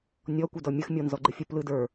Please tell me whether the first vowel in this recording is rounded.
yes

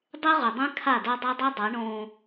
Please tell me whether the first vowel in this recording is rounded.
no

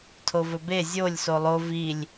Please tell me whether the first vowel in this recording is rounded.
yes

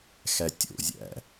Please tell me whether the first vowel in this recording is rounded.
no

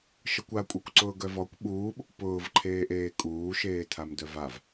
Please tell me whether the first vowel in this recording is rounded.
no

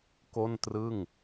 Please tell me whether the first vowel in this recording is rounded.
yes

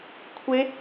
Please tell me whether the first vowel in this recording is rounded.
no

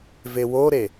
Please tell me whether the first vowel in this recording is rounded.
no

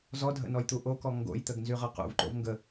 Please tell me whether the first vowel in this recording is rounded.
yes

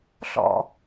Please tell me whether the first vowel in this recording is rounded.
yes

